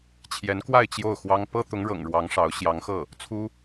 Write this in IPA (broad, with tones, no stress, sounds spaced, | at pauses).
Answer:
t͡ɕʰ j ɛ˧˥ n k w a˥˧ ɪ̯ t͡ɕ j o˥˩ ʊ̯ x w ɑ˥ ŋ p ɤ˥ t̪ ʊ˧˥ ŋ ɻ ɤ̰˨˩ ŋ ɻ w ɑ˧˥ ŋ ʂ ɑ˧˥ ʊ̯ ɕ j ɑ˧˥ ŋ x ɤ˥˩ | t͡sʰ u˥